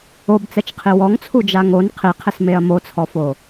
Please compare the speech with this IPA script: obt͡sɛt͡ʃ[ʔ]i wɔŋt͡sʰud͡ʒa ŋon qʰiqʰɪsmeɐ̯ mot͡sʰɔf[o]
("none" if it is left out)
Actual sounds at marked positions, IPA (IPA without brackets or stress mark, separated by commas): qʰ, o